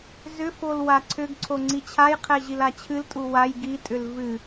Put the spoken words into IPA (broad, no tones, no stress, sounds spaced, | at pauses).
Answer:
z ʏ f o l w a ǀʰ ʏ ɡ ǀʰ o ŋ͡ǀ i t͡ɕʰ a j qʰ ɛ ʑ i l a t͡ɕʰ ɨ l tʼ u w a j ɡ i tʼ ʏ l v ɨ